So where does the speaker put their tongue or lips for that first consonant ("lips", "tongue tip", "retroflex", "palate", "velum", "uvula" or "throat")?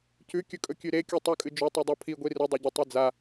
palate